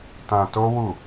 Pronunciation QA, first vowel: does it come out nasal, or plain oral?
nasal